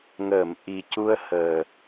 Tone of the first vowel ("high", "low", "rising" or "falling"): low